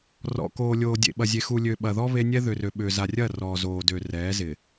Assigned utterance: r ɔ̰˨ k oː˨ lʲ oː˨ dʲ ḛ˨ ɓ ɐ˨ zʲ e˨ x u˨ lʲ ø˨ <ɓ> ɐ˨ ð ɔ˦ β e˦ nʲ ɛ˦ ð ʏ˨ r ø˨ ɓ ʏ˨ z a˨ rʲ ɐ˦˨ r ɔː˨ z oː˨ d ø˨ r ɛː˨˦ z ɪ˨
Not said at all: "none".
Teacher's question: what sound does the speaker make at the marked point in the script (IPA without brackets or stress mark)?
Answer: ɓ